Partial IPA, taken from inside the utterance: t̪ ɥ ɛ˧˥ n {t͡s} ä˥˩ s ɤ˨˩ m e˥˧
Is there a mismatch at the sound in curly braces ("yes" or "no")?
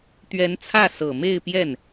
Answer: yes